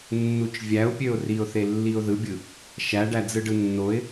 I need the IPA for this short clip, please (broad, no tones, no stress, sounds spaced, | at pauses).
nː u t͡ʃ vʲ æ ʊ̯ pʲ ø ʊ̯ r i ʊ̯ θ e lː i ʊ̯ ð ɯ bʲ ɯ | ʃ æ ɖ æ d͡z ɯ ɖ ɯ nː o ɪ̯